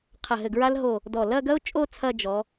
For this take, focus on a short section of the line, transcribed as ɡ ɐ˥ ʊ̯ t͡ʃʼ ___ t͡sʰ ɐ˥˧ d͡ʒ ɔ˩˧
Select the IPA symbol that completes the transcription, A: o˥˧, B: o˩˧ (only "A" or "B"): A